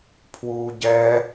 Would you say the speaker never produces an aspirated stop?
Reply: no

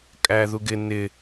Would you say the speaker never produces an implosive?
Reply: yes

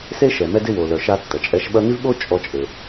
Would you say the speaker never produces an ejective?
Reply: no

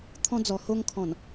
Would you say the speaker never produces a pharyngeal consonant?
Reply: yes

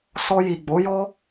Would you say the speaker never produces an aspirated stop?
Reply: yes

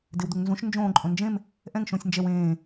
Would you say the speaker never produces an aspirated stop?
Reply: yes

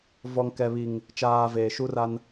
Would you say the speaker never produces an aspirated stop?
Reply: yes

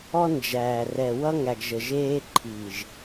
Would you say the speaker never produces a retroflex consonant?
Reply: yes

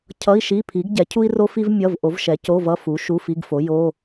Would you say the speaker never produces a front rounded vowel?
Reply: yes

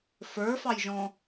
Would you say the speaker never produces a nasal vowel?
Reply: no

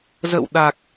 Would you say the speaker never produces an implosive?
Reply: no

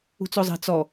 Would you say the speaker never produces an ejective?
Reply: yes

